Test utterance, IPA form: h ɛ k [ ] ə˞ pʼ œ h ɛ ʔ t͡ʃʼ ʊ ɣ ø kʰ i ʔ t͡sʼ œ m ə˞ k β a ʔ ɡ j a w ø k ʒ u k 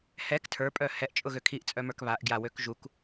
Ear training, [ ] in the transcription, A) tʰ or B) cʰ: A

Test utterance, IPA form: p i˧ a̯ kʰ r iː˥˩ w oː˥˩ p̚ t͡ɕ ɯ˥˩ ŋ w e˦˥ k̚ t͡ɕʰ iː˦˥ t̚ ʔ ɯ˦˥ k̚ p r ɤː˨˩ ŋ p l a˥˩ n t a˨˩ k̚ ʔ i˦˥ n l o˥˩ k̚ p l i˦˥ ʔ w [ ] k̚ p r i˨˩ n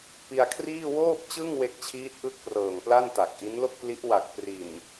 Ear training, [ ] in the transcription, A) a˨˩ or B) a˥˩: A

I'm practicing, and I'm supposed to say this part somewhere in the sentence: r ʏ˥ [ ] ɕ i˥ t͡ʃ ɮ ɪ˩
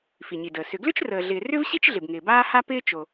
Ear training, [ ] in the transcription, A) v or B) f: A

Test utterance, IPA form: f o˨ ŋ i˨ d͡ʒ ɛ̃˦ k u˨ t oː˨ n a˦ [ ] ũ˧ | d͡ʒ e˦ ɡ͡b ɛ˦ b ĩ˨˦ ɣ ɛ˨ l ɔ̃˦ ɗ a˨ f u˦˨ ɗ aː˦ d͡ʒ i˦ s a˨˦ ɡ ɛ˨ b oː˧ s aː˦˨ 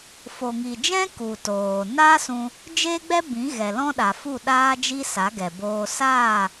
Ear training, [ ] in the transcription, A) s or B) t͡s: A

